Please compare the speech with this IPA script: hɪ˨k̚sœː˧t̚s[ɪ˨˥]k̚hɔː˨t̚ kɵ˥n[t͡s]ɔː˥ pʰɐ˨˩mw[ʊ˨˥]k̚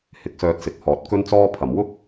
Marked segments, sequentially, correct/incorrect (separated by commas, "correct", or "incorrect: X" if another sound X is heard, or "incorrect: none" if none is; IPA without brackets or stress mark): incorrect: ɪ˨, correct, incorrect: ʊ˥